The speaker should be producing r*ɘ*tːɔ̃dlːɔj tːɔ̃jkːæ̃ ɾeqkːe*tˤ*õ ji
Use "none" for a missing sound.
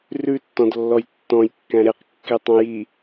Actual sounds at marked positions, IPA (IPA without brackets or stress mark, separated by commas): ʉ, tˤ